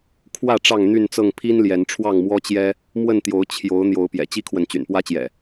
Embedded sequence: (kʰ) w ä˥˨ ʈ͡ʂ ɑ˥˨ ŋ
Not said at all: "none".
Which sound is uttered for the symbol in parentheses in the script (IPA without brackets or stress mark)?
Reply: kʰ